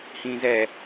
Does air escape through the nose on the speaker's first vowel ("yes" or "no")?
yes